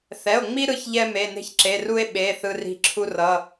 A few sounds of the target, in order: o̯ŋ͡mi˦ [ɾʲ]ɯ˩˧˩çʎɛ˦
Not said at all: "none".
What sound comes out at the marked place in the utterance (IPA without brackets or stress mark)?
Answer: ɾ